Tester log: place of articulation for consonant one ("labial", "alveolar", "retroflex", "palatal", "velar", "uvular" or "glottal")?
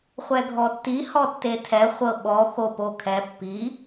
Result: uvular